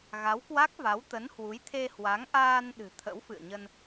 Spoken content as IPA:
ɣ a˨˦ w k w a˦˥ k̚ v a˨˦ w t̪ ə˨˦ n h w u˨˦ j t̪ʰ e˧ h w a˨˦ ŋ ʔ aː˧ n ɗ ɨ̤˨˩ t̪ʰ ə̰˧˥ w f ɨ̰˧˨ ə̯ ɲ ə˧ n

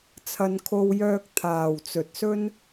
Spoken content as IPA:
t͡sʰ ɐ˥ n kʰ o˥ w j œː˥ k̚ t̪ʰ aː˧ w t͡s ɵ˧ t̚ s ɵ˥ n

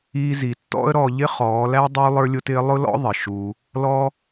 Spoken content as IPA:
iː˧ z i˨ tː ɔ̰˦ ə̯ ɾ ɔ˧ ʎ ɪ˦ χ ɔː˨˦ l æ˦ dˤ uː˦ lˠ ə˞˦ lʲ ʊ˦ t ɪː˦ lˠ ʊ˦ l ɔ̰˦ ðˤ ɪ˨ ʃ uː˧ | l ɔː˦

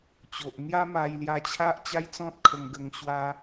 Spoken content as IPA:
t͡ɕ o˨ ʔ n̪ j a˦ m a˧ j l j a˧ t͡ɕʰ a˦ ʔ t͡ɕ a˦ j t͡s ɔ̃˦ t̚ kʰ ə˧ ŋ ɡ ə˧ ŋ ɕ w a˦

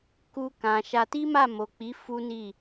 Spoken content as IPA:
k u˧ k ã˨ ʃ a˧ t i˦ m a˦˨ m o˨ k͡p i˨˦ f u˦ n i˦˨

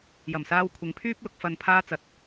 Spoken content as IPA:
j ɐ˨˩ m s aː˧ w kʷʰ ɪ˨˧ ŋ pʰ yː˥ p̚ l ʊ˧ k̚ f ɐ˧ n pʰ aː˥ t͡s ɐ˧ t̚

